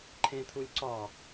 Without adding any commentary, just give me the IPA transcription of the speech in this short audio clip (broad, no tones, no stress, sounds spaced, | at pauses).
ǃʰ ẽ t̪ʰ u lʲ ǀ ɒ